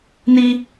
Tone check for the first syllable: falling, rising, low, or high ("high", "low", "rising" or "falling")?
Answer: high